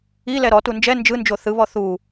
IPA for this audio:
i l ɛ ɾ ɔ t u n d͡ʒ ɛ n d͡ʒ ɯ n d͡ʒ o θ ɯ β ɔ θ uː

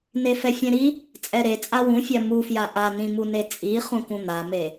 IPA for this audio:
n e f ɛ fʲ ɛ̃ ɾ i | t͡sʼ ɛ ɾ e t͡sʼ a w ũ fʲ a m u f j a ʔ a n ĩ m u n e t͡sʼ i χ ũ k ũ n̪ a m e

